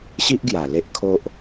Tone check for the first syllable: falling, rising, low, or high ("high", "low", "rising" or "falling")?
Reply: high